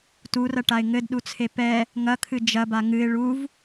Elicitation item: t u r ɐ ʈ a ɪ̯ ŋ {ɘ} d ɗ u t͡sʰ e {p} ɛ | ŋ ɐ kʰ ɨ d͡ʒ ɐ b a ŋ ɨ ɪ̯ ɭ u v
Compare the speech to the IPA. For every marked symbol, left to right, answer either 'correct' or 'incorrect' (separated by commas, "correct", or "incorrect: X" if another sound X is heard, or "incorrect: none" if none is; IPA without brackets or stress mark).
correct, correct